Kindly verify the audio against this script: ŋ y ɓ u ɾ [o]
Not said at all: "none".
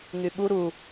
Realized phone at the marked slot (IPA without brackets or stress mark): u